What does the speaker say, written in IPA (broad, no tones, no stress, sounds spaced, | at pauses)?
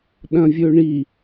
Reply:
ɗ ɐ̃ vʲ ɵ ɳ i